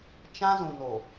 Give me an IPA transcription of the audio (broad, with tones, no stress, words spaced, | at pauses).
t͡ʃã˦zũ˨no˨